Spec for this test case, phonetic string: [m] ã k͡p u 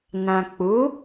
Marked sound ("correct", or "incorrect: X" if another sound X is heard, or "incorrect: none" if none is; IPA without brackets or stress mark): incorrect: n